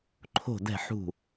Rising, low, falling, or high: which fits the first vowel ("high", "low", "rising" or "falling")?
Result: falling